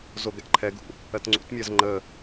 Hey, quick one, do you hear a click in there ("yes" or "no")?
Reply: yes